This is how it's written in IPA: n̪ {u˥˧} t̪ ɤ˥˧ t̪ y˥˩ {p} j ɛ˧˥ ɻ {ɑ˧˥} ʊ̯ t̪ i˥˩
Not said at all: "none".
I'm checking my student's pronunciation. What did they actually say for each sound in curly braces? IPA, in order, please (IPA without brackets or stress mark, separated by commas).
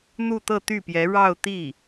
u˥˧, p, ɑ˥˧